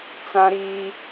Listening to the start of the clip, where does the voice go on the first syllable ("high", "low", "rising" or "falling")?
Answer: high